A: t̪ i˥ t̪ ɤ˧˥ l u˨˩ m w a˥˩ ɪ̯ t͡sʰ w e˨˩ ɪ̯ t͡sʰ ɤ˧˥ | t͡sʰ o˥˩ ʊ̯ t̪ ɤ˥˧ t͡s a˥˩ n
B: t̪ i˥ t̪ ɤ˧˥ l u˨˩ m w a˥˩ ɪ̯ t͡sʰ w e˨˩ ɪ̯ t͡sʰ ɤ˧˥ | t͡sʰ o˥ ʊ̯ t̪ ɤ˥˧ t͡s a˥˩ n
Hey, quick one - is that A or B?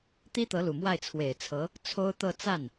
B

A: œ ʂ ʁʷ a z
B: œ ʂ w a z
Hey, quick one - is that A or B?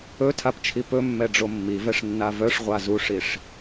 A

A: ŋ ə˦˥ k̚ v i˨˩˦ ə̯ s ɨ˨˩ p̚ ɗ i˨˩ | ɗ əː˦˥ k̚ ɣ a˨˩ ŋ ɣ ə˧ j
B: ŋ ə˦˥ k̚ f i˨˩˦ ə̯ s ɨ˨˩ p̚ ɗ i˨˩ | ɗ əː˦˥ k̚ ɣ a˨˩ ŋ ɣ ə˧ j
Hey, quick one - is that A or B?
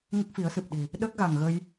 B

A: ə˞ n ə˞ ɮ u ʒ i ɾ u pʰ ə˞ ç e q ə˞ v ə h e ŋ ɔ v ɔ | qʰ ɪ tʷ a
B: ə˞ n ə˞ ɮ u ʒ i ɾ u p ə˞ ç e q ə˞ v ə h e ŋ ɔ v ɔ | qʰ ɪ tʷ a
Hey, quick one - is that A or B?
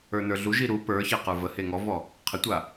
B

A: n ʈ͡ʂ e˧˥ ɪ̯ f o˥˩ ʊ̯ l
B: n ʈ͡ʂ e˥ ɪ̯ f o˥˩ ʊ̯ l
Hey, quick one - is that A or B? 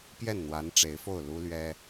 A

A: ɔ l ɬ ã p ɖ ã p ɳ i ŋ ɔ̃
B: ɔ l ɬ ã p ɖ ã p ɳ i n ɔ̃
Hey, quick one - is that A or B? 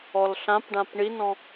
B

